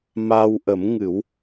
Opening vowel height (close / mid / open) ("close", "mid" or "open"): open